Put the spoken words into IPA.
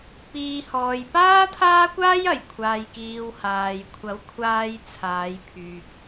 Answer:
piː˨hɔː˨j paː˥t̪ʰaː˥kʷaː˥jɐ˨˩j kʷʰaː˨jkiː˨w haː˨jkʷʰɐ˨˥wkʷʰaː˧j t͡sʰaː˨˧jpʰyː˨k̚

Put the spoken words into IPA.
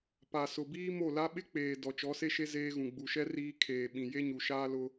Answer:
pa˨sʊ˨biː˦ mo˦˨la˦ ɓɪ˦k͡peː˨ dɔ˨t͡ʃɔ˨˦se˦ʃe˦ zeː˦ɣũ˨ ɡ͡bu˨ʃɛ˦ riː˦ kʰeː˨ɓĩ˨ je˦ɲu˨ʃaː˦ lʊ˦

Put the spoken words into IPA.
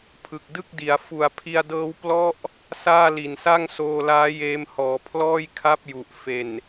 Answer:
pʰɯ˨˩k̚dɯ˥˩k̚di˩˦a̯ fu˨˩a̯pʰi˧a̯dɤː˦˥w plɔ˦˥ʔ | saː˥˩li˨˩n sa˥˩ŋsoː˧laː˦˥ jeː˦˥mhɔː˨˩ pʰlɔː˥˩jkʰa˥˩p̚ ju˨˩ʔfe˨˩n

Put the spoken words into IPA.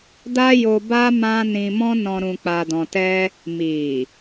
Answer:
da˦jo˧ba˦ mã˦ nĩ˧mɔ̃˦nɔ̃˧ ɾũ˧k͡pa˧dɔ̃˧tɛ˦ | mi˨

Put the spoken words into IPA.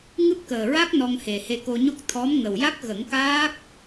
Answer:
ŋɨ˦˥p̚kəː˨˩ɹa˦˥k̚ nɔ˧ŋhe˨˩he˧ko˧ ɲo˦˥k̚t̪ʰɔ˧˥mŋə˨˩w ja˦˥k̚ɣə˨˩˦ŋ kaː˦˥k̚

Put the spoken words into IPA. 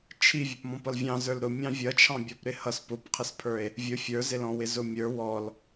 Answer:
t͡ʃʰi vʲɛpmɔ̃pʌlvʲɑ̃ zə˞lɾʊ mʲɑ̃vʲʌt͡ʃʰɑ̃ bʲɔpɾɪhʌs pʊpqʰɪspʰə˞e̯ | vʲʊ fʲə˞zɪlɔ̃ wɪzʊmʲə˞ wɔl

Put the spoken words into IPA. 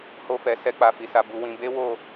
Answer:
ho˧fɛ˨ sɛ˧k͡pa˨fi˨sa˨ bu˧wĩ˧ be˦wo˦˨

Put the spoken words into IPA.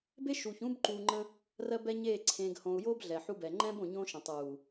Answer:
be˦ʃuː˨çũː˦b ǃuː˨ŋ͡ǃə̃˦ | rɜ˦bɛ˦ɲeː˦˨ ǀʰẽː˨ɡhõ˨u̯jo˦b ɮɛ˨ħu˦bɛ˨ ŋ͡ǃɛ̃˦b õ˨ɲõ˦ʃə̃˨ tˤuː˨

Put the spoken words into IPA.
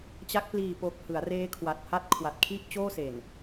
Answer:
t͡ɕa˦˥k̚ pliː˨˩po˨˩k̚ hɯ˩˦a̯reː˦˥kʰwa˨˩t̚ ha˥˩t̚ kʰwa˨˩t̚kʰi˥˩ʔ t͡ɕoː˥˩se˨˩n

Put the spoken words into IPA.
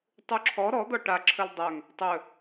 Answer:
tˤuǁʰɔ ɾɔ d̪ɔʈa ǁʰɵldˤœŋ | tˤɵ

